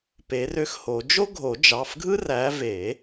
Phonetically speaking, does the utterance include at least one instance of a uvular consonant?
no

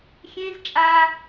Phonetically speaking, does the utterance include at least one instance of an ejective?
yes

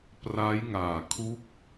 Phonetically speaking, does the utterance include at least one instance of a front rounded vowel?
no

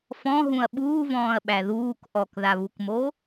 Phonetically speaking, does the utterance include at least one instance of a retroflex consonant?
no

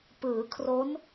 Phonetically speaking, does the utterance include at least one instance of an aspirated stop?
yes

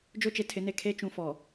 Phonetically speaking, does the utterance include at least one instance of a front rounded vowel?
no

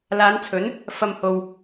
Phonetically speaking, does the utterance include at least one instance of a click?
no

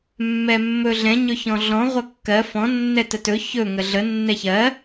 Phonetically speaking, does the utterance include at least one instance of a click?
no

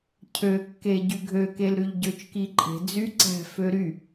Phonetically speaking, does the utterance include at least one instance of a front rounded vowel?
yes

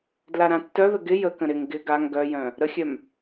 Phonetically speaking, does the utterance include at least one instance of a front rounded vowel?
yes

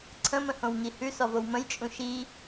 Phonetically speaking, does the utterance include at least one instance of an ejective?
yes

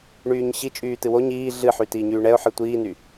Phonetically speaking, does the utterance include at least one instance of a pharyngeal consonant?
yes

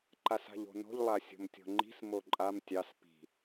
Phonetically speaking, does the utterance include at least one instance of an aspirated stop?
no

